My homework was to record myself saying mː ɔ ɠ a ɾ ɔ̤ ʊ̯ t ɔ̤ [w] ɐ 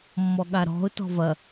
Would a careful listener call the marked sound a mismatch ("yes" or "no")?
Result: yes